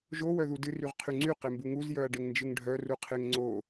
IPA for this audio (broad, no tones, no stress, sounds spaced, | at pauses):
ʒ o w œ ð u d ɨ r y ʁ qʰ y ŋ͡ǀ y q e m b u ŋ u z j œ ɐ̯ ɖ e ŋ n d͡ʒ ɨ ŋ ɖʱ œ r u qʰ e ŋ ŋ͡ǀ o